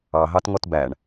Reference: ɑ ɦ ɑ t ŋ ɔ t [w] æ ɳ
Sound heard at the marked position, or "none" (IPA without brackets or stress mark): b